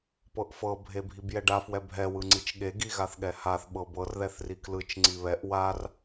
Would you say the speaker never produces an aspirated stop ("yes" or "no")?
yes